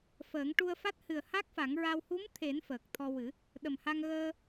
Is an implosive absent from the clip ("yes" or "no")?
no